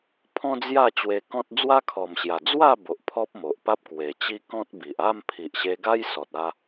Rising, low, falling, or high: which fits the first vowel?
high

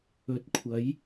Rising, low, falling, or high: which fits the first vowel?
rising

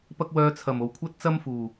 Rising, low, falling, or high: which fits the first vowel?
high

